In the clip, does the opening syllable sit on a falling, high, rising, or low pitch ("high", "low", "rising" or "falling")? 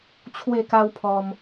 falling